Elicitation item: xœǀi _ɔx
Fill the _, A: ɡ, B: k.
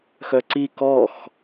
B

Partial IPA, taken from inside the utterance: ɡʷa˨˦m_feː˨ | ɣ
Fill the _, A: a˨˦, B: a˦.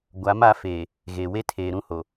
A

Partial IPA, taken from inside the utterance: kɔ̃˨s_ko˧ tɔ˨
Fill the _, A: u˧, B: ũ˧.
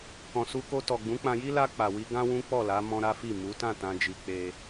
A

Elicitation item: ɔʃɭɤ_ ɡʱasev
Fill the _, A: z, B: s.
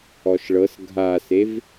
B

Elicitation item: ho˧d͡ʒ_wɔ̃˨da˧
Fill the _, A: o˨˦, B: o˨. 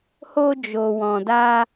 B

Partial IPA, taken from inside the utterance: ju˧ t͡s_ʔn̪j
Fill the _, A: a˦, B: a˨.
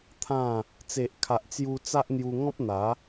A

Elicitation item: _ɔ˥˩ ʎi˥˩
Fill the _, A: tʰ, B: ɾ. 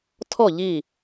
A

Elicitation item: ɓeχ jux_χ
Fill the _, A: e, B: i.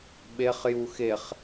A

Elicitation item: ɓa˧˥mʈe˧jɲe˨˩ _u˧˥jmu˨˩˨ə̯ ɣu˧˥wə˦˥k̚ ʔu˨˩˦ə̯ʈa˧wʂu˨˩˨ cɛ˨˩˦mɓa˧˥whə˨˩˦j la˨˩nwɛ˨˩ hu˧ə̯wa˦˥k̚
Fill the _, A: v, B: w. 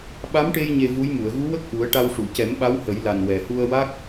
A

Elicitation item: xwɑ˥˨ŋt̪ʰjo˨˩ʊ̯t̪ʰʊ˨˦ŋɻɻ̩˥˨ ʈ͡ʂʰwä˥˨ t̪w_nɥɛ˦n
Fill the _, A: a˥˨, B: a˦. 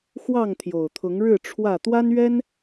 B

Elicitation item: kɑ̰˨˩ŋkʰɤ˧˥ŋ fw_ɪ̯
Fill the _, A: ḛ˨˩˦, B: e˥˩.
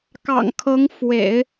A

